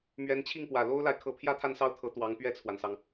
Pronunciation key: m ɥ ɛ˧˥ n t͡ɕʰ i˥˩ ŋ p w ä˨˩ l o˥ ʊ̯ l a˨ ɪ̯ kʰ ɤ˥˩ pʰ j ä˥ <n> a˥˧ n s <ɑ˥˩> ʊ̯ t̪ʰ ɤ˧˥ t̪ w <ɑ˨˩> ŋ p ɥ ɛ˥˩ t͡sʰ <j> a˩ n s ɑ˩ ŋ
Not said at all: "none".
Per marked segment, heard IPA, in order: t̪ʰ, ɑ˥˩, ɑ˧˥, w

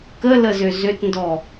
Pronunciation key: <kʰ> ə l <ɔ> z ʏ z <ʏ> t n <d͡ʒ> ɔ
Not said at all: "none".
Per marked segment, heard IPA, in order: k, ə, ʏ, d

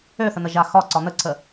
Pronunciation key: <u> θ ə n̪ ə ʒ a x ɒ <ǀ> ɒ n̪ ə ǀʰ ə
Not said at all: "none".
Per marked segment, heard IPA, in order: ø, ǀ

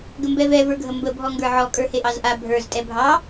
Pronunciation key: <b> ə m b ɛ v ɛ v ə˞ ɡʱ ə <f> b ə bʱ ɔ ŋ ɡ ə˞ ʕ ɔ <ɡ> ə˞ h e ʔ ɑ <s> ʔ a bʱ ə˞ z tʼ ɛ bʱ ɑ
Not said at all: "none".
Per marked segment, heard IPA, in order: ɡ, m, kʼ, z

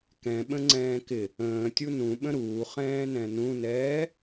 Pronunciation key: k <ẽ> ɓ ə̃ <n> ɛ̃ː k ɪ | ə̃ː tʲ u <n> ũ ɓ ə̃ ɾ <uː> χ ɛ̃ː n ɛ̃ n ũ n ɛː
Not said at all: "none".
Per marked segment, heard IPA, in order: ɛ̃, ŋ͡ǀ, n, uː

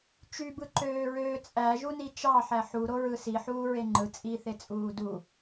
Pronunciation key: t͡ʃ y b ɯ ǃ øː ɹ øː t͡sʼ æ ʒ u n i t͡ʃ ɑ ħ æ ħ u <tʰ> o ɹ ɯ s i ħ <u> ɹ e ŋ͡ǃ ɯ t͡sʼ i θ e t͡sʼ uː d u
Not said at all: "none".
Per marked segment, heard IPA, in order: ɾ, uː

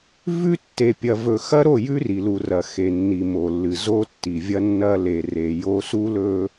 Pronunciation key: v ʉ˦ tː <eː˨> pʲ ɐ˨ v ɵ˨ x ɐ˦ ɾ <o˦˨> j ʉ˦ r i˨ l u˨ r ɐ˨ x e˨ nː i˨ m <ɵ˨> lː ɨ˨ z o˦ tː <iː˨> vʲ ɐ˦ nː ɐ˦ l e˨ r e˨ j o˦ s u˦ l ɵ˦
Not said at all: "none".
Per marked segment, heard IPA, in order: e˨, o˦˨, o˨, i˨

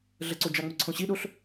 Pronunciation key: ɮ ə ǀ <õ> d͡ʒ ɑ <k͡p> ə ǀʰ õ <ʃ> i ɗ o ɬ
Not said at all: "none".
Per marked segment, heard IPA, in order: o, ŋ͡m, ɕ

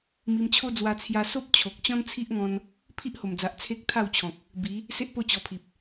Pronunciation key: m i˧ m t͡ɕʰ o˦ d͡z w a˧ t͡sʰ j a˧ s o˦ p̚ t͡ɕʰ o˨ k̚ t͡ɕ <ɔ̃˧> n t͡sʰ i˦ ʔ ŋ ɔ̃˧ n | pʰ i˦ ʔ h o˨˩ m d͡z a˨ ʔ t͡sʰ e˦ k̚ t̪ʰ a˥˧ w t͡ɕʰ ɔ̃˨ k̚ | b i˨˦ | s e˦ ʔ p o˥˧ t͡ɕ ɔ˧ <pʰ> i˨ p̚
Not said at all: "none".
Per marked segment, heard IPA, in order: ɔ̃˦, pʰ

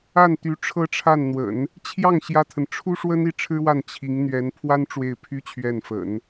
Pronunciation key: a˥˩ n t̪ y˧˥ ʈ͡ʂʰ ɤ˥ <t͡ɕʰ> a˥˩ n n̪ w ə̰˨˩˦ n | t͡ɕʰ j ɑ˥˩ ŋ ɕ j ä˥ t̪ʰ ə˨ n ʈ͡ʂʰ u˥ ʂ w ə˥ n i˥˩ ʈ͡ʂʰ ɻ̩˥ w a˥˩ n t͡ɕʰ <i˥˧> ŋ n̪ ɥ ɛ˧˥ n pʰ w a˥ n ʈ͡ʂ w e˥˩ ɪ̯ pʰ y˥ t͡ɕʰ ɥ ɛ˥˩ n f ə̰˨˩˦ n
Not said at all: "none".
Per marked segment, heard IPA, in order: ʈ͡ʂʰ, i˧˥

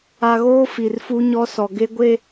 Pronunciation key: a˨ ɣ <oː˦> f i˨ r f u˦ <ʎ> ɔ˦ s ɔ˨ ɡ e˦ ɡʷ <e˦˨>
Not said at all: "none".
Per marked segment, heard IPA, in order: oː˦, ɲ, e˦˨

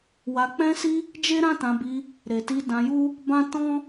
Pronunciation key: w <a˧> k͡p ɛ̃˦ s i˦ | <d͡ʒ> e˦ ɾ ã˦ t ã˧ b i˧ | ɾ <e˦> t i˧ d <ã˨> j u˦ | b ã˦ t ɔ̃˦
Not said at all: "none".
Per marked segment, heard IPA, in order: a˧, d͡ʒ, e˨, ã˧

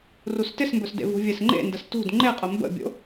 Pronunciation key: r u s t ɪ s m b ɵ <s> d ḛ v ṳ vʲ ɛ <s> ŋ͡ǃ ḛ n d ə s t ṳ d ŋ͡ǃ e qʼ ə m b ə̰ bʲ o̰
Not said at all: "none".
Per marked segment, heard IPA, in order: s, s

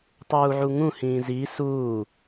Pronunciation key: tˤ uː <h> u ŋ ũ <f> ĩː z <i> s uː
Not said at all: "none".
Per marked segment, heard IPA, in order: ʕ, h, i

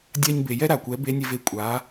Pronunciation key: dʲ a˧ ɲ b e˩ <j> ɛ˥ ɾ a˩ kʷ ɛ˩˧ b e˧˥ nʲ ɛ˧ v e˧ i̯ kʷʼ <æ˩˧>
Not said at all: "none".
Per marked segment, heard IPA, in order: j, a˩˧

